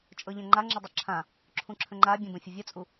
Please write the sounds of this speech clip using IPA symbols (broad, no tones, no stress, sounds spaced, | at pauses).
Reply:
t͡ʃʼ ɤ ʎ ɛ̃ ŋ͡ǃ a ŋ͡ǁ ɘ dˤ ɤ ǁʰ ã | ǁʰ ũ ǁʰ ə̃ ŋ͡ǃ a bʲ ə̃ b ə̃ fʲ ə vʲ ə t͡sʼ u